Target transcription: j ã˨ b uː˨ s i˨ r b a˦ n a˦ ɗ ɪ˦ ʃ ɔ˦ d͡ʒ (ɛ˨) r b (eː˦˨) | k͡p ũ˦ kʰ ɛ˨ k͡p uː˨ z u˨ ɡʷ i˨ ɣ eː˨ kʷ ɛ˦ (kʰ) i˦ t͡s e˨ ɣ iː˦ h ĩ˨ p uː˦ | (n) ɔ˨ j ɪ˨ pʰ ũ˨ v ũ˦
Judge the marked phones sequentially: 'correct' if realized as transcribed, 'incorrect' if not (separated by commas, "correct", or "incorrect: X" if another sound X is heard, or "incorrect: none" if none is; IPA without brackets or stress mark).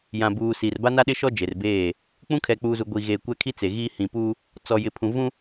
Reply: incorrect: e˨, correct, correct, incorrect: t͡s